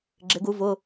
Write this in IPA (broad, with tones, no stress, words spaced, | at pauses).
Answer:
ɡ͡ǁɪ˨˦ɡu˨˦ vʊ˧˥˧